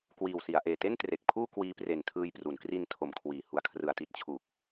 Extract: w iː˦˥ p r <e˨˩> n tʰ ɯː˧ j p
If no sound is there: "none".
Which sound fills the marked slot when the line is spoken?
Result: e˨˩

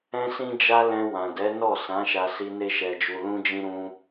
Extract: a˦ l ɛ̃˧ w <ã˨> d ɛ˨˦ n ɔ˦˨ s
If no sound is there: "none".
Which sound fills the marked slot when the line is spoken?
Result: ã˨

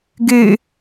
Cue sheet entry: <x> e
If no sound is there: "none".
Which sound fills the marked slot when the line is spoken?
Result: ɡ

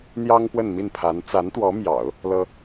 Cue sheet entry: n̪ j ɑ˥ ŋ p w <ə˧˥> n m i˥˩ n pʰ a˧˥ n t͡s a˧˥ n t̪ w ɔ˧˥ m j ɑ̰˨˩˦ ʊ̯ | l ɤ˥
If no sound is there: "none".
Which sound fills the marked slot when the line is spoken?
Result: ə˥˧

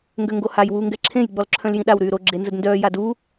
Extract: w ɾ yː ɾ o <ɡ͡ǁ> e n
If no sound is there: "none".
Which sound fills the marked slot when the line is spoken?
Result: ɡ͡ǁ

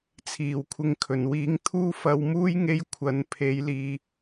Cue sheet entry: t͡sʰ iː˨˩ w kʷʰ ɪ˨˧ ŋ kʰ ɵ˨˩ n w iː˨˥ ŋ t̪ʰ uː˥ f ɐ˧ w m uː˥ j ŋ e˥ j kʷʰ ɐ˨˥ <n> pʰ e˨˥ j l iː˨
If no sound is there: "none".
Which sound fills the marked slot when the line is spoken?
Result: n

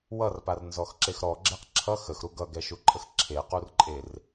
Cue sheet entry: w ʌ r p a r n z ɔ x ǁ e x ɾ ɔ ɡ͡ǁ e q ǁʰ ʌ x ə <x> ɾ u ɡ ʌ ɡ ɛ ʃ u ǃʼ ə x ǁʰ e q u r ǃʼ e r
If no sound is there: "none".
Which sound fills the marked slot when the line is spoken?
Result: x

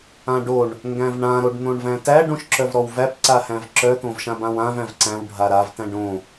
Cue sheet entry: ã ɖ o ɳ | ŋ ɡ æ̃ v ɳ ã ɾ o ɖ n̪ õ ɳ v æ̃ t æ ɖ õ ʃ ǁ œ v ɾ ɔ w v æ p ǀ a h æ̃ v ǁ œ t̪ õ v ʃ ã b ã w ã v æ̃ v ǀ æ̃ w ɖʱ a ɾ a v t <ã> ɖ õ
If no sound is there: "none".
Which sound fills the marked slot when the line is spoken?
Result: æ̃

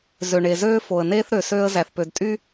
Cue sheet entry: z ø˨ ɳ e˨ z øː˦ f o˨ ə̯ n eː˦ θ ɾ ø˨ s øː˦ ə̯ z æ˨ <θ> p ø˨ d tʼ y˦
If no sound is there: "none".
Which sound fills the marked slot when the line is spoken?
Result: θ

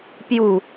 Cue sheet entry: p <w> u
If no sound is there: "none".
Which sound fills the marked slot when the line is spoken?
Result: j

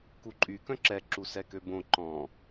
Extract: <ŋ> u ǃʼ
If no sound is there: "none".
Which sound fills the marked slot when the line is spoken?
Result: k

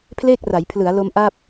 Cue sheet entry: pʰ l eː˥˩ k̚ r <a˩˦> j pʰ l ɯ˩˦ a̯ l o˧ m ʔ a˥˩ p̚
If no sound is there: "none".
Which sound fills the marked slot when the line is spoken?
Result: a˩˦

